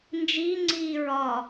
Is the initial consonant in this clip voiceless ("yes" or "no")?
no